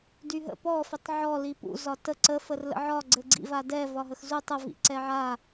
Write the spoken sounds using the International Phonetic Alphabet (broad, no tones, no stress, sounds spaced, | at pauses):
d y ɦ ə̰ p ɔ f ɛ tˤ ʕ ɔ l i p ṵ z ɒ t ə ǀ ə f ə r l ə̰ ʕ ɒ ɡ͡ǀ ɘ ɡ͡ǀ ḭ v a d ɛ v ɒ ɦ ə x z u tˤ ɘ v ḭ ǀ ɛ ʕ a